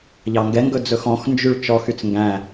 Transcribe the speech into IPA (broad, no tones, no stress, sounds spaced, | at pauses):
ʎ ɑ ŋ ɡ ɛ ŋ ɡ ɵ d͡z ɵ x ɔ̃ x n d͡ʒ y ɭ t͡ʃ ɔ x y t͡s ŋ ɡ æ̃